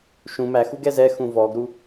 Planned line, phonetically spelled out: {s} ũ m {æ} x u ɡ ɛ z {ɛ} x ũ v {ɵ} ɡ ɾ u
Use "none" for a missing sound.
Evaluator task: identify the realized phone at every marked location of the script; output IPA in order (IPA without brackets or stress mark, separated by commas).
ʃ, æ, ɛ, ɔ